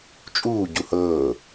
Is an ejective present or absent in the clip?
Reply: present